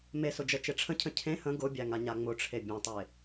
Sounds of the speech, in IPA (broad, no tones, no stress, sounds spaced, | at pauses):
m e s ʊ d͡ʒ ə t͡ʃ e ʈ͡ʂʰ ə̃ cʰ ə̃ cʰ ẽ h ə̃ ɡ ʊ bʲ æ ŋ a ɲ a ŋ͡m ʊ ʈ͡ʂʰ e bʲ ɑ̃ tˤ e